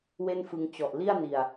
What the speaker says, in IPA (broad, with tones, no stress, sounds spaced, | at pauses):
w e˥˩ n f ɯ˧ ŋ t͡ɕ ɔ˨˩ ʔ l i˥˩ a̯ n i˨˩ a̯